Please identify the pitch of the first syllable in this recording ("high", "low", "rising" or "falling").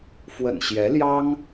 low